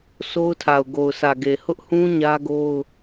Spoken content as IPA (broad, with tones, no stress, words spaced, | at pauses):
so˦ʊ̯tʰa˨ʊ̯ ɡo˨ʊ̯sä˨ɡe˨ hʊ˦ʔhũ˦ ɲä˦ɡo˦ʊ̯